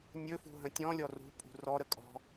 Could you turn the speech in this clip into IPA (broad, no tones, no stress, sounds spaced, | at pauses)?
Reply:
nʲ ɵ f ṳ ɦ ə̃ tʲ ɔ̃ lʲ ɔ r ṳ pʼ ṳ r ɔ ɾ ə kʼ ɔ̤